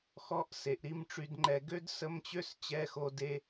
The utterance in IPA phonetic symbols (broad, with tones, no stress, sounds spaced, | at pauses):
x ɔ˧˥˧ ʔ s e˩˧ ʔ ɾ i˥˧ m ʈ͡ʂ y˧ d ŋ͡ǃ ɛ˧ ɡ ø˥ d s ə˧˥˧ m t͡ɕ ø˥˧ s t͡ɕ ɛ˧˥˧ x o˧ d e˧